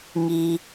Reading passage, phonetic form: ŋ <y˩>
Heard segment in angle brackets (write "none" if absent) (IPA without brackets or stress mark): i˩